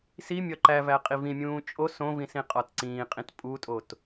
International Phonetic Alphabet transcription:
s i mʲ ɒ ǃ æ v æ qʼ i v ĩ mʲ ũː t͡ʃʼ o s õ v ĩ s ĩ qʼ ɒ t ǀ ĩː qʼ ĩ t pʼ u tʼ o t

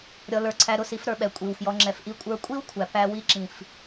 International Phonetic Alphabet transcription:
ɾʲ ɔ˧ l ə˞˧ ǀʰ æ˧ ɾ ʊ˨ s i˧ f ɾ ə˞˨ ɓ ɛ˨ kʷʼ i˨ w f j ɔ˧ ŋ͡ǁ ɛ˧ f ʔ i˦ kʷʼ ə˞˧ kʷʼ i˦ w kʷʰ æ˨ p æ˧ w i˧ ǁ ĩ˨ f

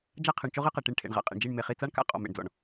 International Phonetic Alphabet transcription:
d͡ʒ a˦ qʰ ɯ˨ ɳ t͡ʃ o˦ ʁ ɯ˦ q ɛ˨ ʈ i˨ ɳ ʈʰ ḛ˨ ɳ ʁ a̰˨ qʼ ḛ˨ ɳ d͡ʒ i˦˨ ɳ m e˨ χ i˨ t͡s a˦ ɳ k a̰˦ qʼ ɔ̰˨ m ḛ˨ ɳ d͡z ɔ̰˨ ɳ

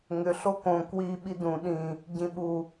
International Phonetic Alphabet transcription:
ŋ ʏ ɬ o k õ k w i ɓ i d ũ ɗ ĩ | ɟ ĩ ɓ u

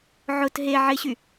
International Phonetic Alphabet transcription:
ʕ ʊ t ɦ e ʕ ɪ ɕ y

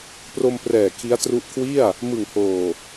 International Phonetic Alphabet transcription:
p r o˧ m p r ɛː˨˩ kʰ i˦˥ a̯ t r u˦˥ ʔ kʰ w i˥˩ a̯ | m ɯ˨˩ ŋ h oː˨˩

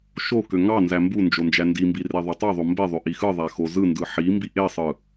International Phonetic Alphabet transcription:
ʃ o k ø ŋ ɑ n z æ m b u n d͡ʒ o n d͡ʒ æ n d i m b i r e ðˤ ø tˤ e ðˤ o m b e ðˤ ø ʔ i x ɯ ðˤ æ x o z ɯ n d ɯ ħ i m b i ʔ e sˤ ɯ

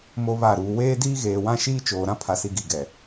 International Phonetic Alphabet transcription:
m o˦ β a˦˨ ɾ uː˨ w eː˦ d iː˦ ɣ eː˨ w ã˦ ʃ iː˦ t͡ʃ oː˨ ɾ ã˦ pʰ a˨ s i˨ ɡ i˨ ɡ ɛ˨

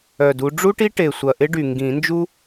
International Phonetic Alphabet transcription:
œ˨˩ d u˨˦ ɖ͡ʐ u˥ ʈ i˥ ʈ e˨˩ sʷ ɐ˨˩ ʔ ɪ˥ ɖ y˨˩ ŋ ɡ ĩ˨˩˦ n d͡ʒ u˥

